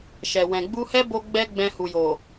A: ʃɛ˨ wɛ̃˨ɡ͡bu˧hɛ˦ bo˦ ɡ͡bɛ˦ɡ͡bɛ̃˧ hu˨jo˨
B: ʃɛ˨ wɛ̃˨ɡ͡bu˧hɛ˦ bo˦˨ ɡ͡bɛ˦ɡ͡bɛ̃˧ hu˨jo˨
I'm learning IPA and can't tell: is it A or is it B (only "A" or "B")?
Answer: A